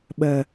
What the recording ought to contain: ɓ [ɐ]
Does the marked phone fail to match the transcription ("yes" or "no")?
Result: no